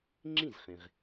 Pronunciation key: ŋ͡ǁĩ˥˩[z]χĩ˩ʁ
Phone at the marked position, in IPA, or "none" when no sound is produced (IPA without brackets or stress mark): z